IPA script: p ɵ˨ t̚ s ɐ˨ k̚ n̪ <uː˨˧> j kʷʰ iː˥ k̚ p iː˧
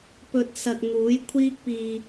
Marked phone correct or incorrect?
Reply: incorrect